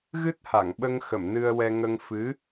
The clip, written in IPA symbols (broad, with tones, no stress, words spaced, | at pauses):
ɣɨ˦˥t̚ha˨˩˨ŋɓə˧ŋxə˨˩˨m nɨ˧ə̯wɛ˧ ŋə˧ŋ fɨ˧˥